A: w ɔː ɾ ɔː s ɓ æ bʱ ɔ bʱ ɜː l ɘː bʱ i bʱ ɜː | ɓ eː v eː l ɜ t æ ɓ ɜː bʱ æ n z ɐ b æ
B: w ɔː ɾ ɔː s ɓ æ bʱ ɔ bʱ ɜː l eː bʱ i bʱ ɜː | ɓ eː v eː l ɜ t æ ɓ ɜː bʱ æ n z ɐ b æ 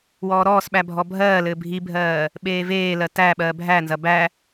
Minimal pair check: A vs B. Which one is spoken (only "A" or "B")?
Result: A